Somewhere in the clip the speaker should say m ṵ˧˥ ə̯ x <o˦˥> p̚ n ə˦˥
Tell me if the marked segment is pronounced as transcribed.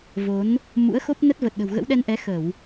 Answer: yes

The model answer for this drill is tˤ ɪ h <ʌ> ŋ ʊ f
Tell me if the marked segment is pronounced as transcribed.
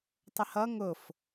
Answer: yes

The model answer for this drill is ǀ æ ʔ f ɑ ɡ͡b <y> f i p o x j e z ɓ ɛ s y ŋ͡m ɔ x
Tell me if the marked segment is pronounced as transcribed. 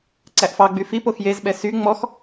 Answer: yes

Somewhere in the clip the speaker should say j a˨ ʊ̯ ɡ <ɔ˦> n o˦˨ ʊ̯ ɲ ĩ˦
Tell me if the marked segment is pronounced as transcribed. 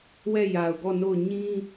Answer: no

